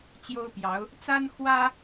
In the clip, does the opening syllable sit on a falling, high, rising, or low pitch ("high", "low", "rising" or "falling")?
high